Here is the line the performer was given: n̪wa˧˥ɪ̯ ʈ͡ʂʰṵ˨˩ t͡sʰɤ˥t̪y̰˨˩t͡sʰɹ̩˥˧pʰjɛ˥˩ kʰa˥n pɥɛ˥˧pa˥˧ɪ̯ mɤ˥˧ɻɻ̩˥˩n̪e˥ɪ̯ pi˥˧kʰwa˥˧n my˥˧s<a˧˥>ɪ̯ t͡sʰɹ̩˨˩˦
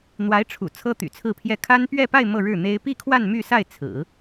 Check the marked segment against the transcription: incorrect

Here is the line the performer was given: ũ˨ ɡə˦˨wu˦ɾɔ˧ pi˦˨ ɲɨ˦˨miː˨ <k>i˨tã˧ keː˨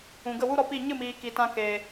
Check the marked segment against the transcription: correct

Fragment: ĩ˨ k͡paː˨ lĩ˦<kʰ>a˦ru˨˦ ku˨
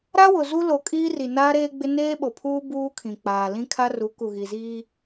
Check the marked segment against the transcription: correct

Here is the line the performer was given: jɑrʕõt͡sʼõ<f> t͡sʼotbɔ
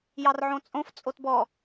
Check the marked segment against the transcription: correct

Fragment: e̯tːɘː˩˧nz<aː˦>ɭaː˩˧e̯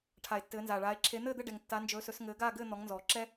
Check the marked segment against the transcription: incorrect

